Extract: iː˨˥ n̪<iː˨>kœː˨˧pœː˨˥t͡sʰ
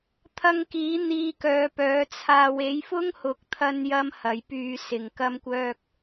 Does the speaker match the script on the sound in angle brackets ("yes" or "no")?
no